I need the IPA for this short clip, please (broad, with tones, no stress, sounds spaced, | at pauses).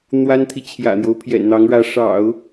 n̪ w a˥ n t̪ʰ i˨ t͡ɕʰ j ä̰˨˩ n̪ j o˦ ʊ̯ pʰ j ɛ̰˨˩ n n̪ ɑ˧˥ ŋ ɻ ä˧˥ ʂ ɑ̰˨˩˦ ʊ̯